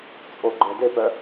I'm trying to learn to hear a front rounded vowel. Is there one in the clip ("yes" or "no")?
yes